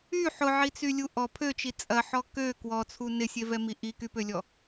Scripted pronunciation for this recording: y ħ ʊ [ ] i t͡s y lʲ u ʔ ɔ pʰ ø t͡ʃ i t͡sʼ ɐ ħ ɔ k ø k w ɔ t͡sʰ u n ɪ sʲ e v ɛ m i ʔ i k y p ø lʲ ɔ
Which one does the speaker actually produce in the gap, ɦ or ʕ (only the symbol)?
ʕ